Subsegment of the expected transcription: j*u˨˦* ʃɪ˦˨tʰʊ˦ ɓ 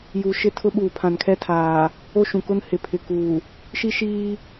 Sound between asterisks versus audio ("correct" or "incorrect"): incorrect